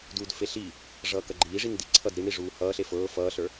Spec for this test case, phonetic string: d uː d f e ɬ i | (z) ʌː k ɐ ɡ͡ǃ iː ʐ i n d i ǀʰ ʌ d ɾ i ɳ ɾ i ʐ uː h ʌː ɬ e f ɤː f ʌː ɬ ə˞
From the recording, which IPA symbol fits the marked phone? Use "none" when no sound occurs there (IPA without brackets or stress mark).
ʐ